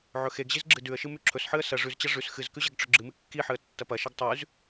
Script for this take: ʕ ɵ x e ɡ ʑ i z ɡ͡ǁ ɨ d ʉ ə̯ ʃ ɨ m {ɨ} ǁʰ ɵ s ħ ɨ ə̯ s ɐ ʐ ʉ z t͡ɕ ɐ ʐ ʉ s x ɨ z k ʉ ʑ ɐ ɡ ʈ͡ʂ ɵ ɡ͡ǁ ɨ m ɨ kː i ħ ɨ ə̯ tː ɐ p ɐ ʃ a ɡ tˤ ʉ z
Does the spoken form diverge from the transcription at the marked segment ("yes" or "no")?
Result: yes